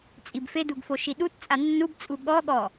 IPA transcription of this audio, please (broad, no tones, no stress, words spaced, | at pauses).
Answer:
t͡sʼibfeduɡfo ʃiɗutt͡sʼa nːubt͡sʼu ɠɔɠɔ